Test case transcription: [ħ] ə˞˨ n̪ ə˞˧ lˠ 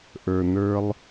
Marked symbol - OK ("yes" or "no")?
no